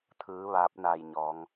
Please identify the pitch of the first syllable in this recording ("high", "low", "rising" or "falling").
rising